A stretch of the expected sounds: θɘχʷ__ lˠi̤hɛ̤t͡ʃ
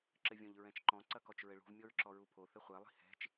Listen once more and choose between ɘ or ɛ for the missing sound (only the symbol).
ɛ